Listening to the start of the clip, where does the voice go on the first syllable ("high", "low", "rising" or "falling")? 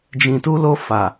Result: low